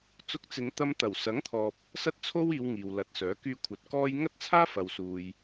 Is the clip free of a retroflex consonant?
yes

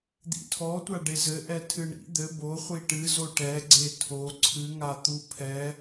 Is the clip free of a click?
no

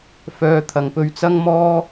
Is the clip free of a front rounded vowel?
no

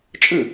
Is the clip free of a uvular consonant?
yes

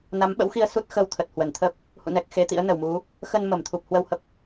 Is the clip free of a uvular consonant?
yes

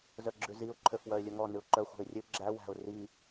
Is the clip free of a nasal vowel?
yes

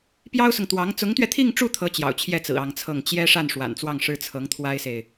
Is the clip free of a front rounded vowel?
yes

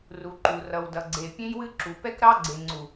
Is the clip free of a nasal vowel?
no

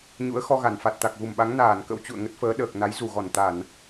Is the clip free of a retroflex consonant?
yes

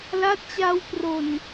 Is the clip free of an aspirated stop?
yes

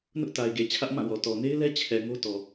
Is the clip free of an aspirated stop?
no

